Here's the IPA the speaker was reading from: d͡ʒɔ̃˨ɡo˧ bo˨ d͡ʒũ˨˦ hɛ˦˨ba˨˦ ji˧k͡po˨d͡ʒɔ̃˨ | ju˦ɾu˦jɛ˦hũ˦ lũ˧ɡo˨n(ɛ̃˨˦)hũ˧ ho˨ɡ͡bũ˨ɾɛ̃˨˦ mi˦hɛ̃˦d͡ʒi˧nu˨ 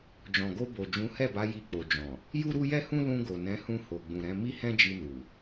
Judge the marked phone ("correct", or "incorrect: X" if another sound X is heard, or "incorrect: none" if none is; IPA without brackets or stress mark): correct